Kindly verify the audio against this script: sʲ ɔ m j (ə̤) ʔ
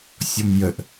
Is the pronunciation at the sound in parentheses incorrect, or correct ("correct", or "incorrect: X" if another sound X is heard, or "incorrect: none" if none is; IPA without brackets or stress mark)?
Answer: incorrect: ə